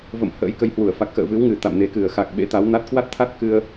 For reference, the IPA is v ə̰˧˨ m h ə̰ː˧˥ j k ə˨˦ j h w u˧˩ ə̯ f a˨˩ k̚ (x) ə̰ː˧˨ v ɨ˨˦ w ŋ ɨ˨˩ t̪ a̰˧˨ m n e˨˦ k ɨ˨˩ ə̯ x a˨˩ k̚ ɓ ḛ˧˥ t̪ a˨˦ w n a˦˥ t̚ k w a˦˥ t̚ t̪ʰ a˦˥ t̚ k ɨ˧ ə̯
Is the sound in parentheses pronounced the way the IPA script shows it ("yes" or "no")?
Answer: yes